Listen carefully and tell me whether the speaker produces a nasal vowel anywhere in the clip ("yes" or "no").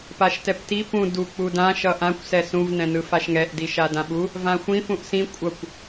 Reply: yes